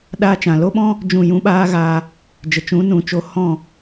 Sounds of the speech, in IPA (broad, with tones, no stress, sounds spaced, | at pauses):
ɗ aː˧ t͡ʃ ã˨ l o˦ ɓ ɔ̃˦ | d͡ʒ ũ˦˨ j ũ˦ ɓ aː˦ ɣ aː˧ | d͡ʒ ə˨ t͡ʃ ũ˨˦ n ũ˨ t͡ʃ o˧ h ɔ̃˦˨